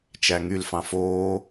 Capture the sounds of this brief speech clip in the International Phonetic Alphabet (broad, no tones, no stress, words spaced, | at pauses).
t͡ʃæŋyl fɑ̃foː